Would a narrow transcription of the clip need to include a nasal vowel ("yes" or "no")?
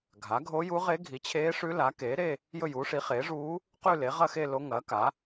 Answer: no